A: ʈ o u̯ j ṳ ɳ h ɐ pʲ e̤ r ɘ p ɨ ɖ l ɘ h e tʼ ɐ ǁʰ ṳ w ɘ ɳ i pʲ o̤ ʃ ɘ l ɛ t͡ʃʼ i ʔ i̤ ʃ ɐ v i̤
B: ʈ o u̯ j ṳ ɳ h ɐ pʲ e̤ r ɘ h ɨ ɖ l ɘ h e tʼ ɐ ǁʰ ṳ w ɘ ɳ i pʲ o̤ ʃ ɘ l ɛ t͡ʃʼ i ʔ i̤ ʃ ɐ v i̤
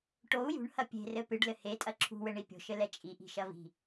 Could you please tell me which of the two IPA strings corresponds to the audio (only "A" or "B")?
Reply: A